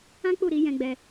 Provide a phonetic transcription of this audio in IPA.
ã˦k͡pu˦˨ɾi˧ jɛ̃˧ɡ͡bɛ˧

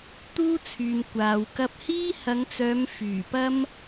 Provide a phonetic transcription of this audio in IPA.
t̪uː˥t͡sʰyː˨m kʷaː˨w kɐ˧p̚hiː˥hɐ˨˧ŋt͡sœː˨˧m fyː˨˩pɐ˥m

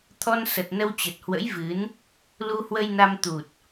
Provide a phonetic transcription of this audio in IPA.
t̪ʰɔ˧nsə˨˩t̚ nə˧wt͡ɕə˨˩t̚hwə̰˧˥jvɨ˨˦n | lu˧hwə˧jna˧m t̪u˨˩t̚

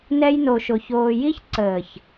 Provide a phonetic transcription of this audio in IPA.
nɛ˦jno˧ʃo˧ çoː˧ji˦ç ǀəː˨ç

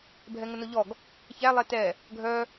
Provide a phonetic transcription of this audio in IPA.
bʱɛŋənoʎɔɡ | çæ lˠɛtɛ | ɡʱœ

